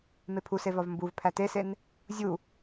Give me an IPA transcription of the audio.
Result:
m e pʰ u s e v ɒ v m b u v pʰ æ t e s e n | zʲ u

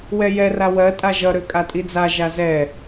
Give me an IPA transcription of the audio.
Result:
w ɛ j ɛ r a w ɜ tʼ a ʒ ʌ ɾ ø kʼ a tʼ i d͡z a ʒ a z ɛ

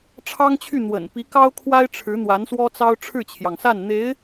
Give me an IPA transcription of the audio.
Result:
ʈ͡ʂʰ ɑ˥ ŋ t͡ɕʰ y˥˩ n̪ w ə̰˨˩ n p i˧˥ k ɑ˥ ʊ̯ kʰ w a˥ ɪ̯ ʈ͡ʂʰ ɻ̩˧˥ n̪ w a˧˥ n s w ɔ˥ t͡s ɑ˥ ʊ̯ ʈ͡ʂʰ ɻ̩˥˩ t͡ɕʰ j ɑ˩ ŋ s a˥˩ n n̪ e˧˥ ɪ̯

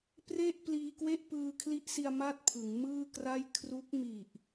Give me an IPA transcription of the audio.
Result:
p r e˥˩ ʔ p l iː˧ k w e˥˩ ʔ p ɯː˧ kʰ l i˦˥ ʔ s i˧ a̯ m a˥˩ t̚ pʰ ɯ˩˦ ŋ m ɯː˥˩ k r a˥˩ j kʰ r u˦˥ k̚ m i˨˩ ʔ

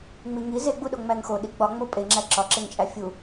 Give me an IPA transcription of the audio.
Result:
ŋ͡m i ŋ i z e ɡ͡b u ɗ o ŋ͡m æ ŋ x o ɗ i ɡ͡b ɒ ŋ͡m o pʼ e ŋ͡ǁ æ ǁ ɒ ǁ e ŋ t͡ʃʼ æ fʲ u

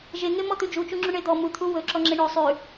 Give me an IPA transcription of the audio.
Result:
ʒ e ŋ e m ɔ t̪ ʉ d͡ʒ u t͡ʃ u ŋ͡ǁ u ɳ e d̪ ɔ m u t̪ʰ u w ɵ ǁ ɔ ŋ͡ǁ e ɳ ɵ sˤ ʉ

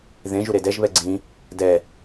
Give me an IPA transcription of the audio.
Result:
ð ẽ ʒ u ɾ e d ɛ ʒ β ɛ ɡ͡ǀ ĩ | d ɛ

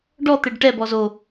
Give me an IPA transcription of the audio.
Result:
ɖ ɔ t̪ e ɖ ʈ ɛ b ɔ z o

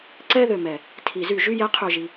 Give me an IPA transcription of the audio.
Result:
ǀ ɛ˥˧ ð ø˨ m ɛ˨˩˦ | tʰ i˨˩˦ z y˨˩˦ ʒ y˥˧ j ɛ˧˥ qʰ ø˨ ʒ i˨

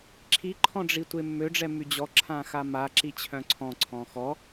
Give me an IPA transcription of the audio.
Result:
ǁʰ i ǃʰ ɔ̃ ɖ͡ʐ i tʷ e mː ø ɖ͡ʐ ɛ m y d͡ʑ ɔ ǁʰ ã x a m a ǁ i t͡ɕʰ œ̃ ǀʰ ɔ̃ ǀʰ ɔ̃ x ɔ

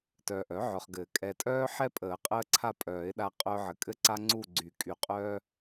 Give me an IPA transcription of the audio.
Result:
t œː˨ ʔ œ˩˥ ʕ œ˨ χ ɡ ɘː˨˩˦ kʼ ɛ˨ tʼ œː˦ ħ ɛ˦ pʼ əː˨˩˦ qʼ əː˦ ǀʰ a˦˨ pʼ œː˨˩˦ ɪ̯ ɗ a˦ qʼ œː˦ ʕ ɘ˨ kʼ ɘ˦˨ ǀ a˦ ŋ͡ǀ u˦˨ ɡ͡ǀ y˨˩˦ kʼ y˨˩˦ qʼ œː˦

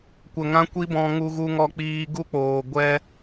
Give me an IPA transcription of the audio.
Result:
kʷ ə˨ ŋ ã˦ kʷ i˦ b ɔ̃˧ ŋ u˧ ɣ u˧ ŋ ɔ˧ k͡p iː˧ ɡ u˦ k͡p oː˨ ɡʷ ɛ˧

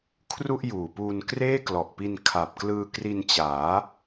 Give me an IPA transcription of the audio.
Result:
kʰ r u˥˩ ʔ j uː˨˩ p uː˧ n k r eː˥˩ k l ɔ˨˩ ʔ p i˧ n kʰ a˨˩ p̚ k l ɯː˧ k r i˧ n t͡ɕ aː˩˦

